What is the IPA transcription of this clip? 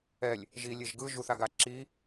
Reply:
ɛ lʲ | ʒ i lʲ e ʒ ɡ ɯ ʒ u θ a ɡ a ǁ i

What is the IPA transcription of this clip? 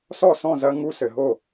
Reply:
s ɔ˥˩ s ɔ̃˥˩ z ɐ˦˥ ŋ u˧˥˧ s ɘ˩˧ ɦ o˥˩

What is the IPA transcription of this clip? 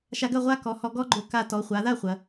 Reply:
ʃ a˧ ɡ ɐ˥˧ ʁʷ a˥ k ɔ˩˧ h ɔ˧ ɡ ɔ˥ ɡ͡ǃ o˧ k a˧ t ɔ˩˧ χʷ a˩˧ ð a˥˧ χʷ ɐ˩˧

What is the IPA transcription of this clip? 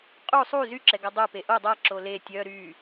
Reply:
qʼ u sˤ u z y ǁ ɛ ɡ a dˤ œ p e ʔ o dˤ a ǁ o l e tʲ œ ɾ y

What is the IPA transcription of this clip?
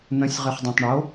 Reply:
n̪ ə̃ sʲ ʁ ɨ χ dˤ ɛ̃ tˤ ɳ o

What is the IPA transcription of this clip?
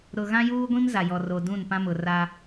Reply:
ɾ ʊ˨ ɣ ã˦ j uː˦ ɡʷ ĩ˦ m z a˨ j ɔ˨ r o˨ d ũ˦˨ n p ã˦ m ʊ˨ r a˦

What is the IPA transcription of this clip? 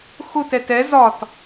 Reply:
x ʊ t ɛ t ɛ z ɒ t

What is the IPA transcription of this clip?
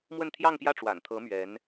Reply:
m w ə˥˧ n t̪ʰ j ɑ˥˧ ŋ p j ä˥˩ ʈ͡ʂ w a̰˨˩ n t̪ʰ ɤ˧˥ m ɥ ɛ˧˥ n

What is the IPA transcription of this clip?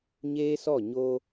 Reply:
ɲ eː˦ s ɔ˦˨ ɲ o˦

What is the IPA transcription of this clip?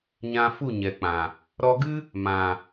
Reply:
ɲ ã˧ f u˦˨ ɲ ɛ˨ k͡p ã˨ | ɾ ɔ˧ ɡ ɨ˦ | m ã˨

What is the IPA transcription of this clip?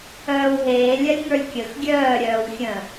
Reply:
œː w ɦ eː lʲ ɜ lʲ ŋ ə˞ lʲ kʲ ə x ɡʲ œː ɾʲ œː w xʲ ə̃

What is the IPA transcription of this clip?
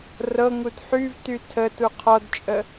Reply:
r ɤ ŋ u d ħ y v t y tʰ ə t u qʰ ɔ d t͡ʃʼ ə

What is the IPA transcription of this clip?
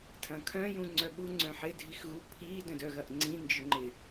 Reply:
tʰ ɐ̃ kʰ œ̃ j ũ ŋ͡ǀ œ ɓ u ŋ͡ǀ œ̃ ħ ɪ dʱ i x ɣ u pʰ i d œ̃ d œ ɣ ɐ ʔ ŋ͡ǀ ĩ n d͡ʒ ʏ ŋ͡ǃ ɪ

